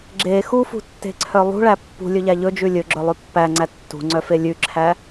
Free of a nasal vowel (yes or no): yes